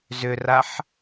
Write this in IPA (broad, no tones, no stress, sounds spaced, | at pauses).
z ʏ r a ħ